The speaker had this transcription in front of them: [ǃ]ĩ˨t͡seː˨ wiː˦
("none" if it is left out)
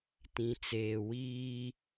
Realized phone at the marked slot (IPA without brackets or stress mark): t